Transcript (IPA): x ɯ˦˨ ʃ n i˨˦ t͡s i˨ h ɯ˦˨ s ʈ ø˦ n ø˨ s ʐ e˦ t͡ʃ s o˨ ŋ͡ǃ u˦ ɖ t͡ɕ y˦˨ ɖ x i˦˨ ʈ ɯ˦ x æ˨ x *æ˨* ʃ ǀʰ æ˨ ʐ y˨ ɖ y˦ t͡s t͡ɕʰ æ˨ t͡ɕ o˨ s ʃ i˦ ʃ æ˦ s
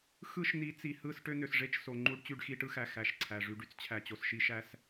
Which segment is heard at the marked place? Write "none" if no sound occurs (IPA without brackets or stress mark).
æ˨